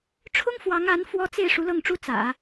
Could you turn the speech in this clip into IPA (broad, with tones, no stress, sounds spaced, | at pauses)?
ʈ͡ʂʰ ʊ˥ ŋ f w ɑ˧˥ ŋ a˧˥ n f w ɔ˥ t͡s e˥˩ ɪ̯ ʂ u˧˥ l ɤ˥˩ ŋ ʈ͡ʂ u˥ t͡s ä̰˨˩˦